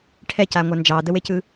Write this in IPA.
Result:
ʈʰɛcaŋʷa nd͡ʒɑdəwecɯ

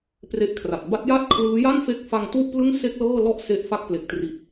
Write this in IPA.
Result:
pre˦˥ʔkʰra˨˩t̚ ba˦˥t̚ja˥˩t̚kʰlɯː˦˥ ja˥˩nfe˦˥k̚fa˧ŋ tu˥˩ʔplɯ˥˩ŋse˥˩k̚ lɤː˥˩lɔ˥˩ʔse˦˥ʔ fa˥˩k̚ ple˨˩k̚tri˨˩t̚

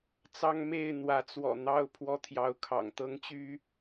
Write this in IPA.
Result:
t͡sɑ˦ŋme˥˨ɪ̯ n̪wä˨˦t͡swɔ̰˨˩ n̪ɑ˥˨ʊ̯ pʰwɔ˦t̪ʰjɑ˨˦ʊ̯kʰɑ̰˨˩ŋ t̪ɤ˦ŋt͡ɕy˦

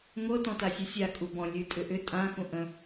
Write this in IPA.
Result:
ŋʷɤ tɔ̃tasʲusʲa kʼubɔ̃ lʲʉtʼʏʔʏ tʼã xũʔə̃

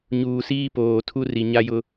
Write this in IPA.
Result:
ɲuː˨siː˦poː˨ tʰu˦ri˨ɲa˦jʊ˦

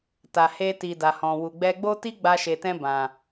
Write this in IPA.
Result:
ta˨he˧ti˨ da˨hɔ̃˨ wu˨ɡ͡bɛ˧ɡ͡bo˦ti˦ ɡ͡ba˧ʃe˨tɛ̃˧ bã˨

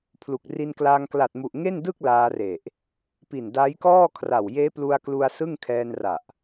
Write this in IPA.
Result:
pʰlu˨˩k̚ ri˧nklaː˧ŋ kla˨˩t̚mu˨˩ʔ ŋe˥˩ndɯ˥˩k̚ laː˧re˨˩ʔ | pi˨˩n da˦˥jkɔː˥˩kʰra˨˩w jeː˦˥plu˧a̯klu˧a̯ sɯ˥˩ŋ kʰɛː˧nra˨˩ʔ

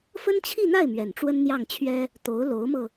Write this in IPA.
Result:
fə˥nt͡ɕʰi˥˧n̪a˥˩ɪ̯ mɥɛ˨˩nʈ͡ʂwə˥nn̪jɑ˥˩ŋt͡ɕʰɥɛ˥ | t̪o˧˥ʊ̯lo˧˥ʊ̯mɤ˧

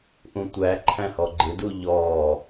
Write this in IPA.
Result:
ʔũtʷæ ǃʰæ̃hɔɡ͡ǃɪdu ʎɔː

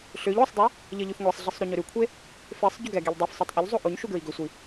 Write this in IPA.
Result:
ɬʏʎ osˤdˤe | ʎʌʎʉfŋʷɛsˤɮisˤ ɾoɲʏɾʉkʷʰe | fesˤ ɟʉɡɛɡiʎ dˤefsˤetˤ ʔʏʎzˤo ʔoɲ ʃuɡɹiɡʏsʷi

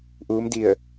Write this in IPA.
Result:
ʔuː˧˥mdi˧˩ə̯

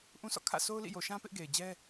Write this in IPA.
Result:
ʔũ˦sʰɔ̰˦˨ kʰä̰˦˨ sʰo˦ʊ̯lḭ˦˨jo˨ʃã˦ pɪ˦ʔɡe˨ɪ̯d͡ʑɛ˦

